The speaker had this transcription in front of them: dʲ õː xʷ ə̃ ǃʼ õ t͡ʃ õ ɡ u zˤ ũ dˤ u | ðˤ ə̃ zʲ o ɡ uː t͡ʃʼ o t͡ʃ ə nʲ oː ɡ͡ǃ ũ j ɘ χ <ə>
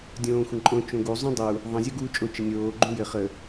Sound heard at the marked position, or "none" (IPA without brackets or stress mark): ə